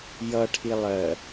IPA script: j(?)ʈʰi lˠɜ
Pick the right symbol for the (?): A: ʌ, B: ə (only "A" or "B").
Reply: A